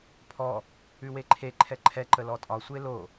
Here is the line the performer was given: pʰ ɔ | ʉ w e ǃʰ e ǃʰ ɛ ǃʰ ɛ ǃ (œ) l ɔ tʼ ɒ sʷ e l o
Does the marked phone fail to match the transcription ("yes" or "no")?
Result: yes